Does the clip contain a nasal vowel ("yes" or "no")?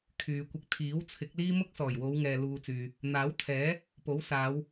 no